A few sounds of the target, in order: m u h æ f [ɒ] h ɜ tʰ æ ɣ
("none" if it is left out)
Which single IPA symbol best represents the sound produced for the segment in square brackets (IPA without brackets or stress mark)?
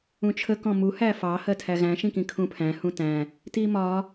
ɑ